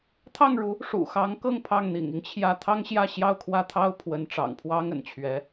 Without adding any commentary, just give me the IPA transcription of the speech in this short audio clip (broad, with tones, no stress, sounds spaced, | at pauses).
t̪ʰ ɑ˥˩ ŋ ɻ u˧˥ | ʂ ṵ˨˩ x ɑ˧˥ ŋ k ɤ˥˧ ŋ pʰ ɑ˥˩ ŋ n̪ ḭ˨˩ ŋ i˦ ŋ t͡ɕʰ j ä˥˩ t̪ʰ ɑ˥ ŋ ɕ j ä˥˧ ɕ j ɑ˥˧ ʊ̯ kʰ w ä˥˩ t̪ʰ ɑ˥ ʊ̯ pʰ w ə˧˥ n ʈ͡ʂ ɑ̰˨˩ ŋ pʰ w ɑ˥ ŋ ə̰˨˩ n t͡ɕʰ ɥ ɛ˧˥